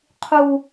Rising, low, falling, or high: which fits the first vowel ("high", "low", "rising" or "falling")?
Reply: low